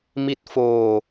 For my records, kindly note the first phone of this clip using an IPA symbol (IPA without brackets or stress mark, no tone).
m